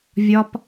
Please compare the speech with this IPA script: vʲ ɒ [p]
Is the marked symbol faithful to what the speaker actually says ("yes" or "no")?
yes